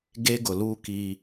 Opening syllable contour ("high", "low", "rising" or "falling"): high